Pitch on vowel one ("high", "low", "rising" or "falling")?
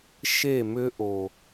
falling